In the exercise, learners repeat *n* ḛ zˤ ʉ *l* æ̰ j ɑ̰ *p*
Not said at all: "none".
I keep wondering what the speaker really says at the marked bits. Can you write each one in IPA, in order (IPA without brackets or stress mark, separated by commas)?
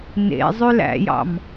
n, l, m